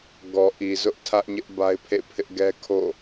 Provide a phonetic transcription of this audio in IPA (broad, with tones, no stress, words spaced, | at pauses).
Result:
ɡɔ˨ʔi˨ zʊ˦ʔtʰä˦ʔɲɪ˦ʔ ba˦ɪ̯pʰḛ˦˨pʰɪ˦ʔ ɡɛ˦kʰo̰˦˨